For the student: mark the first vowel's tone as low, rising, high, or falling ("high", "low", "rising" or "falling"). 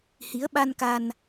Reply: rising